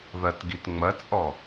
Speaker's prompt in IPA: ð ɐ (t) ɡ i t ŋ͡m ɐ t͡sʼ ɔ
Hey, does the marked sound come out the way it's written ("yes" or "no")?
yes